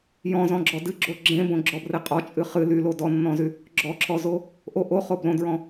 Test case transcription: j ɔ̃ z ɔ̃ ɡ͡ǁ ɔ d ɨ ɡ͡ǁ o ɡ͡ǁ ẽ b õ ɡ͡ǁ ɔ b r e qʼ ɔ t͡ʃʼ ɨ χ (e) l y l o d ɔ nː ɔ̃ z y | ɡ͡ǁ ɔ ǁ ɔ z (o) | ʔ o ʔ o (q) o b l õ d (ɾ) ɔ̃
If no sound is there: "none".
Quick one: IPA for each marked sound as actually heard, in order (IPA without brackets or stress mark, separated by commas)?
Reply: ɨ, o, χ, ɹ